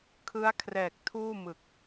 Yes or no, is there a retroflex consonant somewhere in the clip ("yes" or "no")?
no